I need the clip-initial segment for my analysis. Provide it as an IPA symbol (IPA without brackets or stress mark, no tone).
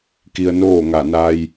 k